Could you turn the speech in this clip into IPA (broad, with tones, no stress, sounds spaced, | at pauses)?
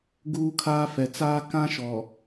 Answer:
ɡ uː˦ kʰ aː˦ f ɛ˨ t͡s aː˦ k ã˦ ʃ ɔ˨